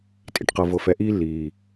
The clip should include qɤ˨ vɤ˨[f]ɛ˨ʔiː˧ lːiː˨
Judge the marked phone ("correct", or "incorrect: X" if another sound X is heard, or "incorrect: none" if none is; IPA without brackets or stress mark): correct